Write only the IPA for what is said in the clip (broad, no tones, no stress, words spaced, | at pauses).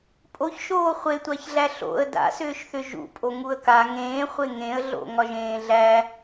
pʼoçʃoː χʷetʷaçɮæ ɬo̰ə̯ da̰sʏːʃθʏ ʒṵpʼoŋuə̯ ka ŋẽːχʷe ŋẽə̯ɮo̰ ŋɒʒẽːɮæ